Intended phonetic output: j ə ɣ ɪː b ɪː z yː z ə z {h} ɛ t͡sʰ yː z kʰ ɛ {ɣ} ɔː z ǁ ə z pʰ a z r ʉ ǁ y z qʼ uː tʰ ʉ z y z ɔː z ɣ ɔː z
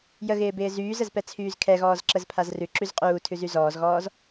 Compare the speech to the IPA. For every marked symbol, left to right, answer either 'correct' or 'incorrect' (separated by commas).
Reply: incorrect, correct